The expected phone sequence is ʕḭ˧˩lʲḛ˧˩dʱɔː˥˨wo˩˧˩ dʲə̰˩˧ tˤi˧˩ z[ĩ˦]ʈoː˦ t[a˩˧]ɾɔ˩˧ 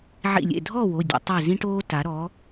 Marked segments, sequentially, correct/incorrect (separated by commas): correct, correct